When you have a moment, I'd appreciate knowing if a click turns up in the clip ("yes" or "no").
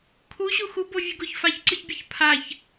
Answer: yes